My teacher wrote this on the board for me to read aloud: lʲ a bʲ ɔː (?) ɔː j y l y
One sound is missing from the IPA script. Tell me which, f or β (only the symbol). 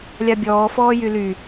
f